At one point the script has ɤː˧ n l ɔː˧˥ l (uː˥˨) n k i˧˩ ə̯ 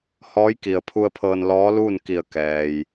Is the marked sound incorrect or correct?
correct